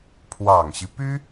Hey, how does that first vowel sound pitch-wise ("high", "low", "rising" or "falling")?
low